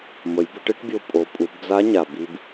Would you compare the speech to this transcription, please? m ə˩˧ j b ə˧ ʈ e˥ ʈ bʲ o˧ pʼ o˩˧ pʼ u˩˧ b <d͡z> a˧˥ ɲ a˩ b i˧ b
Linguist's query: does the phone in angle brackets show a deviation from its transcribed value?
no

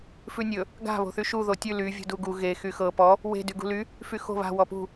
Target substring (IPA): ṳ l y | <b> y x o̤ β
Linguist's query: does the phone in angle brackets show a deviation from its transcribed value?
yes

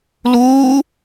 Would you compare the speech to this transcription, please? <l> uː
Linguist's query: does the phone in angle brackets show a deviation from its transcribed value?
no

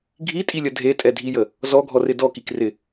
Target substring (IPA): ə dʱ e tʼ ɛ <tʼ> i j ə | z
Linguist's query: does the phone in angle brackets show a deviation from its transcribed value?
yes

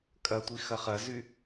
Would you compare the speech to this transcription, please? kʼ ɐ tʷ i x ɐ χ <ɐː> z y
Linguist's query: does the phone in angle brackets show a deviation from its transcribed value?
yes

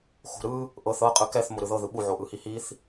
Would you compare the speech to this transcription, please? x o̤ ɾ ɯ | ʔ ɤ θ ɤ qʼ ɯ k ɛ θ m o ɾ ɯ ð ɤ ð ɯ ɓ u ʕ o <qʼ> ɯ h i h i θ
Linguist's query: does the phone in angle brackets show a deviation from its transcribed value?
yes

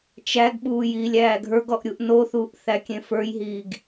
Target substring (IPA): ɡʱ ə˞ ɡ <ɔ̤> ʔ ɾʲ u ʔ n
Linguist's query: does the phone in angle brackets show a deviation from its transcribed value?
yes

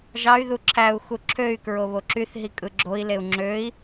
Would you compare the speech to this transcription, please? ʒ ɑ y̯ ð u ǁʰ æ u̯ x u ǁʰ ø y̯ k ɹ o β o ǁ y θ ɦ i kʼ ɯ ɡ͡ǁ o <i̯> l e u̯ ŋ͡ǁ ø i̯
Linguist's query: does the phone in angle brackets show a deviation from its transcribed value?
no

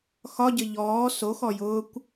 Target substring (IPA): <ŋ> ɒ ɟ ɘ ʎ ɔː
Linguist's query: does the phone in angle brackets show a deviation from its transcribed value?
yes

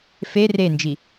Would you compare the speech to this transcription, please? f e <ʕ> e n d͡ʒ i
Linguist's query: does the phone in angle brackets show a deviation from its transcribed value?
yes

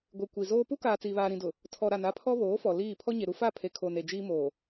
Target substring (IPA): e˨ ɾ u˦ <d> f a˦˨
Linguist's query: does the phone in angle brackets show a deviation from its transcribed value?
yes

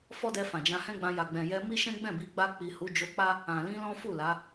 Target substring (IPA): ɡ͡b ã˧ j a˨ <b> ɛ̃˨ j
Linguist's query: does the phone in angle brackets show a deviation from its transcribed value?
yes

